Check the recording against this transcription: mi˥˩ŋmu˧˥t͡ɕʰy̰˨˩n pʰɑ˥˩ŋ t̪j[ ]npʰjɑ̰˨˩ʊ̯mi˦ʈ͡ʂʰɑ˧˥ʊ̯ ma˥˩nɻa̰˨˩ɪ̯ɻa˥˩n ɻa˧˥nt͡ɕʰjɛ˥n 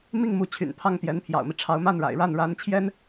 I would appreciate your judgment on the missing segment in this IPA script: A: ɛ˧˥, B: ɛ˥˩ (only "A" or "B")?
A